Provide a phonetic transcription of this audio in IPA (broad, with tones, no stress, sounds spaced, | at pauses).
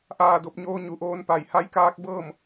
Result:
ʔ aː˧˩ d o˧ p̚ ɲ oː˧ ɲ u˩ ʔ oː˧ n p a˧˩ j h a˧˥ j k aː˧˥ k̚ b ɤː˥˨ m